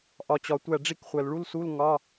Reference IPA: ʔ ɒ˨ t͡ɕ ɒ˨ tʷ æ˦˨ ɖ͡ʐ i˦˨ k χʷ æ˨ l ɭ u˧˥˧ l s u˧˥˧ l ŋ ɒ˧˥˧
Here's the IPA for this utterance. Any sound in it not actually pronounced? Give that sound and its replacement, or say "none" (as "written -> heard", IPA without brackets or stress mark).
none